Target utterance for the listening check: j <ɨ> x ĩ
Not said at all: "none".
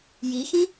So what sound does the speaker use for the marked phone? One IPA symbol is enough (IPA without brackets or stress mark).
i